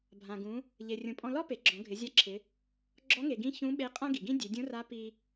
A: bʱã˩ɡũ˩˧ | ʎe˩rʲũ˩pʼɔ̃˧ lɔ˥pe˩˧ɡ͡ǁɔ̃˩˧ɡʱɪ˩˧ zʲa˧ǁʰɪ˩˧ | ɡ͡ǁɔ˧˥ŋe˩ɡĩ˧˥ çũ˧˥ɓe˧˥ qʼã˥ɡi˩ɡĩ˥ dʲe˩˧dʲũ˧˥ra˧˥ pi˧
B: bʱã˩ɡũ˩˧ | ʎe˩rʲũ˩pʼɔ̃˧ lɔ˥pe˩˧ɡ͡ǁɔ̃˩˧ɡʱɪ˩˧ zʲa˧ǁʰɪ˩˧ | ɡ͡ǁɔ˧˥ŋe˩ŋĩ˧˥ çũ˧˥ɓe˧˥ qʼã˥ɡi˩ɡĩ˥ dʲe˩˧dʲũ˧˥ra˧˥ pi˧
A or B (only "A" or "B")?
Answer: A